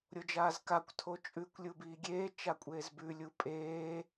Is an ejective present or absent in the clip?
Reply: present